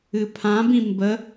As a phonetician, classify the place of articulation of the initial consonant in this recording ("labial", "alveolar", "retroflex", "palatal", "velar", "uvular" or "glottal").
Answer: labial